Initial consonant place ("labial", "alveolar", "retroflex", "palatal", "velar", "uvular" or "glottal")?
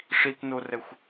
retroflex